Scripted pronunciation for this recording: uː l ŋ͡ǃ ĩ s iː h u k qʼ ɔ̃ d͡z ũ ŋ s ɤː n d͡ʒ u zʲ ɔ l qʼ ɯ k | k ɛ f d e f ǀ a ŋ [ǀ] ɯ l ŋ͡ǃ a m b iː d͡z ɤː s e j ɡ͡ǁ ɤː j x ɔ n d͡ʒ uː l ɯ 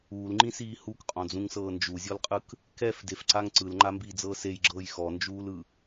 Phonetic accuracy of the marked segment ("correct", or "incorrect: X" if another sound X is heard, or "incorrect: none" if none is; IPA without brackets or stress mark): correct